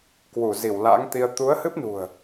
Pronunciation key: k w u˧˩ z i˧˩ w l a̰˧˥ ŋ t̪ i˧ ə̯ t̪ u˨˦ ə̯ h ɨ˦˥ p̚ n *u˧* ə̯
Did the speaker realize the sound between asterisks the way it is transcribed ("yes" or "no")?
no